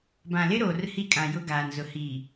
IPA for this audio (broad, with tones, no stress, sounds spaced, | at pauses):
b ã˨ l ɪ˦ ɾ oː˨ r h i˦ kʼ ã˨ j ʊ˦ ɡ aː˨ n z ʊ˨ h iː˨